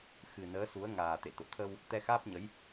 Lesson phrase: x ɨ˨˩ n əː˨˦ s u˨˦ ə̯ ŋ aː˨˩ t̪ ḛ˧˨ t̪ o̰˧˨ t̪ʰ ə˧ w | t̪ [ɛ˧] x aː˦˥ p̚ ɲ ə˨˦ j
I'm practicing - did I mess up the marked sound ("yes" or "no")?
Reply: no